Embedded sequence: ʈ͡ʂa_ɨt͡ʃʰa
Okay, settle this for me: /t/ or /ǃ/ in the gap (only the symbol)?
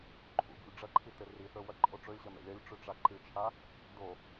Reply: ǃ